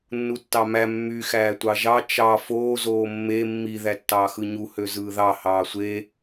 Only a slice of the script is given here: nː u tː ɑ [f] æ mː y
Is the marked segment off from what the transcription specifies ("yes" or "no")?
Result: yes